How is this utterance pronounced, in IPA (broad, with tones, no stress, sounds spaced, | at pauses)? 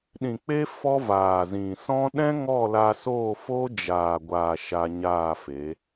ɗ ĩ˨ k͡p e˦ f ɔ˦ v aː˨ z ĩ˨ s ɔ̃˦ ɗ ɛ̃˦ ŋ ɔ˦˨ l a˧ s oː˦˨ f oː˦ d͡ʒ aː˨ ɡʷ aː˨ ʃ a˧ ɲ aː˦˨ f e˨˦